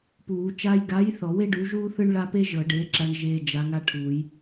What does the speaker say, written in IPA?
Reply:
p uː˨˩˦ t͡ʃ a˧ j ɡ a˨˥ j θ ɔ˨˩˦ w e˥ ɖ u˨˥ ʒ uː˥ θ ɯ˥ ɳ ɭ a˥ p e˥ ʒ ɤ˨˩˦ ɖ eː˨˥ ǁ a˧ ɳ ʒ eː˧ d͡ʒ a˨˥ ŋ a˥ ʈʰ uː˨˩˦ j

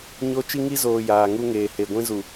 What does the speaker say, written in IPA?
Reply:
ɲ o˦ t͡ʃ i˦ ŋ i˦ z oː˨ j aː˨ ŋ u˦ ŋ eː˨ h e˨ ɡʷ ĩ˦ z u˨

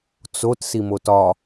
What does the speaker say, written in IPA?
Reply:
t͡s o t s i m o t ɒ

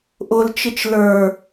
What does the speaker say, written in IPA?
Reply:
ʔ ʊ l t͡ʃ ɪ t͡ʃ l ə˞

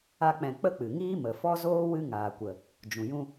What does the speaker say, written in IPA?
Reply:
a˦ k͡p ɛ̃˧ k͡p ə˦ k͡p ɨ˨ ŋ iː˦ m ə˨ f ɔ˦ z oː˦ w ɨ˦ ŋ aː˨ kʷ ə˨ | d͡ʒ ũ˨ j ũ˧

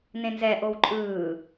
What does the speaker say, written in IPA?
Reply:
n ẽ n z ɛ ʔ o w ǃʼ ɯː

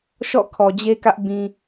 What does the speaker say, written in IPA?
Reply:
ʃ ɔ̰˦˨ kʰ ɔ˨ d͡ʑ e˦ k ä˦ ʔ b ĩ˦

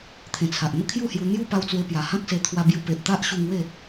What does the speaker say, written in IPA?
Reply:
t̪ʰ ẽ˨˩ t͡sʰ a˨ ʔ n̪ ə˦ kʰ j u˥˧ h j u˧ n̪ j u˦ p a˧ w t͡s w e˧ p j a˨˩ h ã˦ k̚ s e˧ t̪ʰ w a˧ b j u˧ p e˨ ʔ t̪ a˦ ʔ ɕ u˧ ŋ w e˥˧

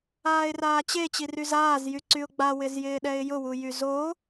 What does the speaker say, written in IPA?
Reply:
aː ɪ̯ r aː t͡ɕ e t͡ɕ i r y z aː z j y ǀ y ʊ̯ ɡ͡b a w ɪ z j ɪː ɗ ɛ ɪ̯ j ʊ w u j y z o

